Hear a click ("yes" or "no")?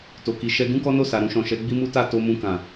no